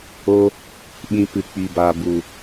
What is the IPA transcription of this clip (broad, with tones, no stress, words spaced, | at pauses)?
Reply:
o˦ | ɓĩ˧ pɨ˨k͡pi˨ba˨ bu˨